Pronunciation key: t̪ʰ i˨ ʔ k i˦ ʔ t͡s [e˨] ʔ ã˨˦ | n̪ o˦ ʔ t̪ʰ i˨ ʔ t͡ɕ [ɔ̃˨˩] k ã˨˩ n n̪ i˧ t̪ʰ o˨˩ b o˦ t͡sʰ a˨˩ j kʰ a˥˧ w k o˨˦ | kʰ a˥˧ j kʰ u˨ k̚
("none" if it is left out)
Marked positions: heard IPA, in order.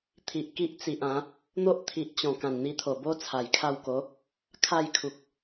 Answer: i˨, ɔ̃˨˩

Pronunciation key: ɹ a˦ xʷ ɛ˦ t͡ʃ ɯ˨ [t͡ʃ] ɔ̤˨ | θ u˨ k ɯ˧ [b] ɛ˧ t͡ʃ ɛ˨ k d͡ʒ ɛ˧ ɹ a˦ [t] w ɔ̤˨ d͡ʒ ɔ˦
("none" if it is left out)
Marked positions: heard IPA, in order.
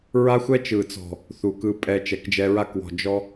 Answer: t͡s, pʼ, k

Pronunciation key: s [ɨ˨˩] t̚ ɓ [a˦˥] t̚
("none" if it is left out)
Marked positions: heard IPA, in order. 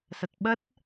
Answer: ə˨˩, ə˦˥

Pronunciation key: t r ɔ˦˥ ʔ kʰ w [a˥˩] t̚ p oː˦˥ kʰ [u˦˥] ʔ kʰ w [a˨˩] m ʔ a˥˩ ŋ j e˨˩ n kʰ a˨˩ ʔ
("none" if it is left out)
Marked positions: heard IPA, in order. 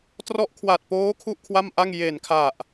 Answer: a˨˩, u˥˩, a˥˩

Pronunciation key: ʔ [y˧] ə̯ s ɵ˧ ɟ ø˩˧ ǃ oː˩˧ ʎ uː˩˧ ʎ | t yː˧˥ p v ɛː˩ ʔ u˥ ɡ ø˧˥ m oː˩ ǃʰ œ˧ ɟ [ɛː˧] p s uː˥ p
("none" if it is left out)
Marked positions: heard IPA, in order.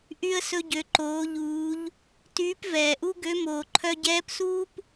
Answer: y˧, ɛː˧˥

